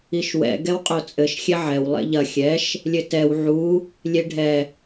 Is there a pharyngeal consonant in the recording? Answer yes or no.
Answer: yes